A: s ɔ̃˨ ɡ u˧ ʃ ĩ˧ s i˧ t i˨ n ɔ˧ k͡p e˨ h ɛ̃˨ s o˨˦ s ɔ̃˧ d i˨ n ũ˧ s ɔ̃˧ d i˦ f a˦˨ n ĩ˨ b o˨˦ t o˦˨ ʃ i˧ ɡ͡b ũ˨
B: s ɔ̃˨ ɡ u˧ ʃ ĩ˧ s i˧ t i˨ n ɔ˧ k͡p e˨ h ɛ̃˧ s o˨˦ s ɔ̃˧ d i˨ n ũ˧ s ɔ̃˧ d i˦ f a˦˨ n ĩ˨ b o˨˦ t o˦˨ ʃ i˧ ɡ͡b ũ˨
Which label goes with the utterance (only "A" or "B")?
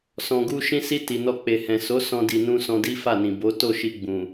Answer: A